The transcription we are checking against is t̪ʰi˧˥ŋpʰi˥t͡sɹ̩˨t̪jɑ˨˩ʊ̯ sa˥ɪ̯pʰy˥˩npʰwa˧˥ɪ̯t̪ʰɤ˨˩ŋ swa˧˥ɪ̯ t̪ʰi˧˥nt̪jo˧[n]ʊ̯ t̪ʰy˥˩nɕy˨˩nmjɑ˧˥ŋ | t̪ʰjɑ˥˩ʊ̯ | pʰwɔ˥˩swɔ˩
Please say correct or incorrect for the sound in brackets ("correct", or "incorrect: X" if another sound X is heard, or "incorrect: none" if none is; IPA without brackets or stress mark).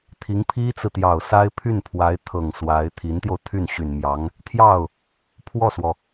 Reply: incorrect: none